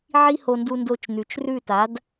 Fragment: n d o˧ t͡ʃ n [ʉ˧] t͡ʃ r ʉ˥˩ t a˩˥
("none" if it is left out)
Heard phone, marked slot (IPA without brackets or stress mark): ʉ˩